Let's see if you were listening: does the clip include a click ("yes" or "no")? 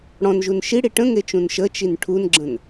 yes